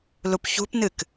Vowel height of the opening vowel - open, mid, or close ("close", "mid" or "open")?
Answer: close